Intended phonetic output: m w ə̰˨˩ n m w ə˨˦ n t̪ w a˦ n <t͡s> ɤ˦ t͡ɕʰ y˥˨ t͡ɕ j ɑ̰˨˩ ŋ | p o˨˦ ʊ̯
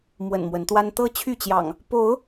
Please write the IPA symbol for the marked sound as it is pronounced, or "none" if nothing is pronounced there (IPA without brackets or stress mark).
t̪